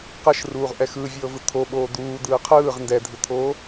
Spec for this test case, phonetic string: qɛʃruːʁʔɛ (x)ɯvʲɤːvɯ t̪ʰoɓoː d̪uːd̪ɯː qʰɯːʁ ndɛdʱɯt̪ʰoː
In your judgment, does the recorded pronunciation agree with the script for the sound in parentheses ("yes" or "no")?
yes